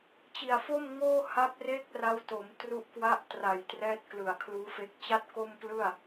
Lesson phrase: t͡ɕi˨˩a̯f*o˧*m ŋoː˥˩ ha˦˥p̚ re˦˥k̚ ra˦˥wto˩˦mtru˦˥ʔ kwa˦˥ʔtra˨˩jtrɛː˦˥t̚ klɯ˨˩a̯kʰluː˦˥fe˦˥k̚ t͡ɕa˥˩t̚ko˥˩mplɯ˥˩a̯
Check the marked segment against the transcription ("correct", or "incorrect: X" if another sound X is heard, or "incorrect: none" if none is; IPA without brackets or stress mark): incorrect: o˥˩